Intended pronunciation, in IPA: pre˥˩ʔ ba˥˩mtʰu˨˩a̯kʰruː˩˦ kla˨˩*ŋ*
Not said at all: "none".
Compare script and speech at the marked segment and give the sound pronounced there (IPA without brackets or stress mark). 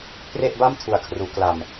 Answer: m